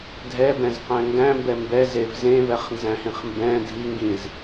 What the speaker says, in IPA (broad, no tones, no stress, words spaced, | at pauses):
dʱɛbɛ̃zqæ̃ ŋɡæ̃mbɛ mbɛzev zẽvɛχnzæ̃hĩχ mbɛ̃ dʱi ŋɡĩz